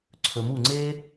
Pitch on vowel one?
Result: low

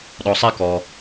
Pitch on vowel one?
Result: low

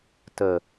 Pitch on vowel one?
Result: low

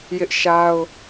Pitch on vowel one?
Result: high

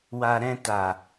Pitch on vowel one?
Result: low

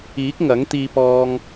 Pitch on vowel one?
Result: rising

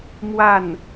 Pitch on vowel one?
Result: falling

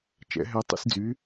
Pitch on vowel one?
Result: rising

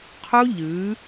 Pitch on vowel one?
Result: high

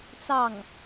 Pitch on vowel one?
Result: falling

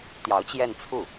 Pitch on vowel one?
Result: rising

